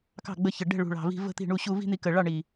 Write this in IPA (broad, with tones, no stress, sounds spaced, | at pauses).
k ɑ̤˥˩ ɡ͡b ə˧ ç ə˨˩ ɖ ɛ̤˥˩ ɭ ṳ˨˩ ɭ ɑ̤˨˩ v i̤˧ v ə̤˥˧ t̪ i̤˥˩ ɳ u˥˩ ɕ u˥˧ v i̤˥˧ n̪ i˧ k ə˨˩ ɭ ɑ˥˩ ɳ i˨˩